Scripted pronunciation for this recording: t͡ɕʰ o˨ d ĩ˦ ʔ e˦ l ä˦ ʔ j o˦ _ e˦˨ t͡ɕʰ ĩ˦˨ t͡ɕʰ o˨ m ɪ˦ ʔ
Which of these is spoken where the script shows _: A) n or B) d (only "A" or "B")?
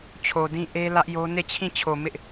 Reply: A